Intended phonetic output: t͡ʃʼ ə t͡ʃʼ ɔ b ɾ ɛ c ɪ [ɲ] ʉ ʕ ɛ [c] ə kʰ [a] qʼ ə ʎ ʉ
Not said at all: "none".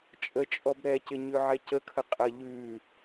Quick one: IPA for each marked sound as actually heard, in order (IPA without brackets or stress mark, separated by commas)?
ɲ, c, ə